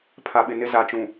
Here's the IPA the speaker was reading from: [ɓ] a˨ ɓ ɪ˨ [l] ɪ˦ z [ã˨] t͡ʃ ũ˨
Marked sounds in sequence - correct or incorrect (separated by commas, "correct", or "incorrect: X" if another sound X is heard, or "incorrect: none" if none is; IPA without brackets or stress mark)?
incorrect: pʰ, incorrect: n, incorrect: a˨